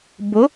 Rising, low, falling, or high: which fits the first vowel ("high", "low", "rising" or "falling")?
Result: rising